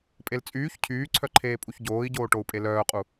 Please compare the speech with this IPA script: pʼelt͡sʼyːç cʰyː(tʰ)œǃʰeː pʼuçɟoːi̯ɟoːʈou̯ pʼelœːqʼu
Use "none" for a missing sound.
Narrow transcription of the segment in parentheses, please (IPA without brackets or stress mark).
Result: ǀʰ